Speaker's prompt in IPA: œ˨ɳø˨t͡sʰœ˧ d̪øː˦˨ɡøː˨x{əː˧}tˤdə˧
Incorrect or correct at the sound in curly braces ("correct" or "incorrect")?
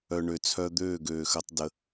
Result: correct